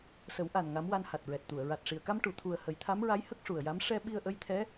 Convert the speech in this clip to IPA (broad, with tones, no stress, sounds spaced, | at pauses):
s ə˨˩˦ w ʔ a˨˩ n ŋ a˧˥ m w a˧ n h a˨˩ t̚ ɹ ɛ˨˩ t̚ t̪ u˨˩˨ ə̯ ɹ a˨˩ t̚ ʂ i˨˩ ə̯ k a˧ m ʈ u˨˩˨ t̪ʰ u˨˩ ə̯ h ə˨˩˦ j t̪ʰ a˧˥ m ɹ a˧˥ j h ə˦˥ k̚ ʂ u˨˩ ə̯ j a˧˥ m ʂ ɛ˧ ɓ i˧ ə̯ ʔ ə˧˥ j t̪ʰ ɛ˧˥